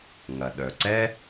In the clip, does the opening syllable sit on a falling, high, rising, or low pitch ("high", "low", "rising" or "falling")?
low